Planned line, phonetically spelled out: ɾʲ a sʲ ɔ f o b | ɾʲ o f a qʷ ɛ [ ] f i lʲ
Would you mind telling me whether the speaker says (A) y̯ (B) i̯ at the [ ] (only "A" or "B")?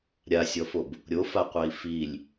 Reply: B